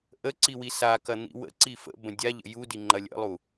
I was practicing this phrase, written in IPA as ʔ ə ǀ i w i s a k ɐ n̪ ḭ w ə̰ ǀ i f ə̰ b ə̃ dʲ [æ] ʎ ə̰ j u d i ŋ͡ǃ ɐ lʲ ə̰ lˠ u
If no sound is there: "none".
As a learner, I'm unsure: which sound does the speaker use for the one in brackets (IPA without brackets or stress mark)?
a